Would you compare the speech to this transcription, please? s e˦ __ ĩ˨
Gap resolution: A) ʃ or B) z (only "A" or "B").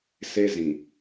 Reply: B